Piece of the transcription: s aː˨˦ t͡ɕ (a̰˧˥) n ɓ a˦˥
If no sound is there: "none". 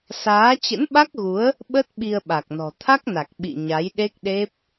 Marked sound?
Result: ə̰˧˥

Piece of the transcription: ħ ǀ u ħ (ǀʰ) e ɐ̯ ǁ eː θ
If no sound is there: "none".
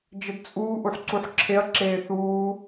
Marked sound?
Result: ǁʰ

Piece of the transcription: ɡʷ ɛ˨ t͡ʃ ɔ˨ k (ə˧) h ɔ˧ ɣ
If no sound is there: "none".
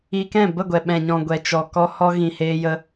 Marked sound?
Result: ɔ˧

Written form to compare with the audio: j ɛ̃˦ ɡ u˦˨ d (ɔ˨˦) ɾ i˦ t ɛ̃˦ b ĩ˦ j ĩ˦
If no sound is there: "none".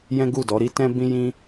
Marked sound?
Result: ɔ˨˦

